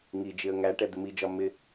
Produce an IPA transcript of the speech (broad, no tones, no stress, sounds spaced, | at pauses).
ŋ i d͡ʒ ɪ ə̯ ŋ æ ʈ ɛ d̪ ɪ m i d͡ʒ ɒ m ɪ